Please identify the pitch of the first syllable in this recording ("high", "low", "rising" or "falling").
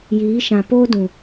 rising